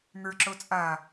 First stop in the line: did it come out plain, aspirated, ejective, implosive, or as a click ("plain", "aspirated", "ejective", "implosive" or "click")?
click